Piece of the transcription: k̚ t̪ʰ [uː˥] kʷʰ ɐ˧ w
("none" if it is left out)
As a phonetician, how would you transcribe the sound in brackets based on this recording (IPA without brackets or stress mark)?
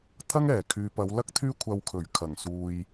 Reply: yː˥